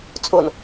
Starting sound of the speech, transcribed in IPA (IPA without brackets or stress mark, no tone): t͡sʼ